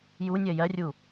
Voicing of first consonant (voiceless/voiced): voiced